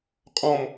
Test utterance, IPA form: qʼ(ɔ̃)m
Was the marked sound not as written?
no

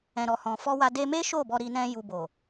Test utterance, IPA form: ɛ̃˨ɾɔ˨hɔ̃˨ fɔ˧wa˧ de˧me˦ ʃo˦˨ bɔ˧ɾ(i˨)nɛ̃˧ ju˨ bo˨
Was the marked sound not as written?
yes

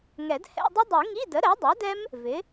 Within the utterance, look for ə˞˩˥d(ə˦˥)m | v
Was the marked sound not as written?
yes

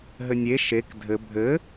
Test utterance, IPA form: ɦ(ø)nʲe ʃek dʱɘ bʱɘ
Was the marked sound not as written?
yes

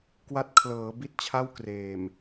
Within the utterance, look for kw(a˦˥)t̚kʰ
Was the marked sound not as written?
no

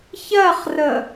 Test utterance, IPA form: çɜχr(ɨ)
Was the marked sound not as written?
yes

